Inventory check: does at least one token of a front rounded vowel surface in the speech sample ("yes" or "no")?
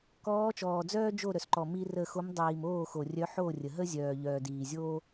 yes